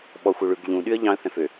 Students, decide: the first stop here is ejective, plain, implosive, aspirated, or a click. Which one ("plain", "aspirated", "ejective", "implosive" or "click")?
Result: implosive